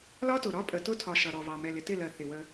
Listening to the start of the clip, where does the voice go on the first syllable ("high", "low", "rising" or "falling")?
high